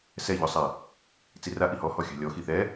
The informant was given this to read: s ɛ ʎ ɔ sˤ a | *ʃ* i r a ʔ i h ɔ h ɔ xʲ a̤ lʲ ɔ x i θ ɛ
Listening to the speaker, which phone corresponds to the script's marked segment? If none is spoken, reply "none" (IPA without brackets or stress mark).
t͡s